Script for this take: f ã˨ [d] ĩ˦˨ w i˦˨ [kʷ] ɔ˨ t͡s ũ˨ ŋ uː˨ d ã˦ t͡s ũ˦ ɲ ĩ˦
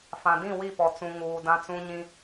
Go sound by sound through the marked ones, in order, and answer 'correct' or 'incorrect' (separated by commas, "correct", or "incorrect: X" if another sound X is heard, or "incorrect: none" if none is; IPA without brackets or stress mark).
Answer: correct, incorrect: p